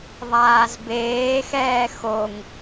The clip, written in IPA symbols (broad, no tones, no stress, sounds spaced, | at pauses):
ðˤ aː z b eː x ɛː x o ŋ